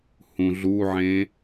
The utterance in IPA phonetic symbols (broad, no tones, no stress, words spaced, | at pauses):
hũɮuʕẽ